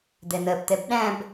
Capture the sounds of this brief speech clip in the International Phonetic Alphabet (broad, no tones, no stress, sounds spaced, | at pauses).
d̪ ɛ n̪ ɜ p t̪ ɛ b ɗ æ̃ b